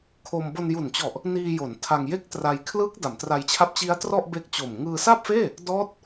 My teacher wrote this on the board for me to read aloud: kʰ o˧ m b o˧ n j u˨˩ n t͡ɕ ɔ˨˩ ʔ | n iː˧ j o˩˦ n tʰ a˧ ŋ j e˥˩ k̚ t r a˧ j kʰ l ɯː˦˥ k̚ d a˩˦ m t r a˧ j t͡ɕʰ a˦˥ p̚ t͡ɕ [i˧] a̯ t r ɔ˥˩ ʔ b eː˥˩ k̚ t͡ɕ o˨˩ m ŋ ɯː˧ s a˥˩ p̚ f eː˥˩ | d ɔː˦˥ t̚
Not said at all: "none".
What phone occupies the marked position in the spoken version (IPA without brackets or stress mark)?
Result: i˦˥